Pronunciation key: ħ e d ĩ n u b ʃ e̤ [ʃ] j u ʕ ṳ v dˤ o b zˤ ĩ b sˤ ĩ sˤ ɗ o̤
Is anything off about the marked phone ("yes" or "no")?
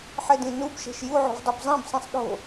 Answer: no